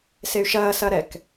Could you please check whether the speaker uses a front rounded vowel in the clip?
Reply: yes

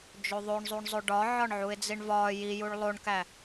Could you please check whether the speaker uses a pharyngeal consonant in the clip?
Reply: yes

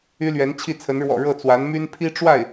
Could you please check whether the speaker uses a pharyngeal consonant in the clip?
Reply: no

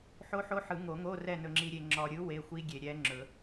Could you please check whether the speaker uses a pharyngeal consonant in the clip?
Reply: yes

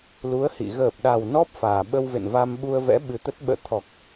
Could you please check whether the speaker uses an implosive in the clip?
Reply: yes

